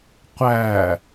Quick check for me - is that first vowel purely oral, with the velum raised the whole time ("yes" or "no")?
yes